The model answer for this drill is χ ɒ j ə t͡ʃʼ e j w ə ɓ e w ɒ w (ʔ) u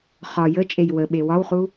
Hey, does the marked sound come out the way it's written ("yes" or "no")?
no